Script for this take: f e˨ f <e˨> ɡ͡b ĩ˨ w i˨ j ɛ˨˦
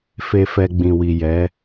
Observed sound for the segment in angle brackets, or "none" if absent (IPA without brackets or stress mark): ɛ˨